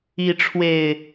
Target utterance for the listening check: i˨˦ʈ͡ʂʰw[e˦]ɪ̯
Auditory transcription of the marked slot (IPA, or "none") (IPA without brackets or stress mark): e˨˩